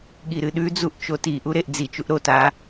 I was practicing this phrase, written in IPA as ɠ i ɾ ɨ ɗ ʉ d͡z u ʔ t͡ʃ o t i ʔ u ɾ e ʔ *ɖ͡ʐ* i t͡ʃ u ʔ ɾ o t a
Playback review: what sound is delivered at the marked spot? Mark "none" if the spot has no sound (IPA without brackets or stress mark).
d͡z